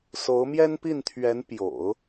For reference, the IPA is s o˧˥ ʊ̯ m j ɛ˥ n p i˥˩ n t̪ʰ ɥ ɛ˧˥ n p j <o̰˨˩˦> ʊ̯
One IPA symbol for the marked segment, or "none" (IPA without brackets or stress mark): o̰˨˩˦